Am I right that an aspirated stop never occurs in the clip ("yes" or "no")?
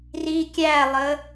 yes